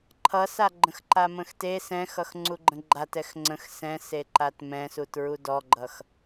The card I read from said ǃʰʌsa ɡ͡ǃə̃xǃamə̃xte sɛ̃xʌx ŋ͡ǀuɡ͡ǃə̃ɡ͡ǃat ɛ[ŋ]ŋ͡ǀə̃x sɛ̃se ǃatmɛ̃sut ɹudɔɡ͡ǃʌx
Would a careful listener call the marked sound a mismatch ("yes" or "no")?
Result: yes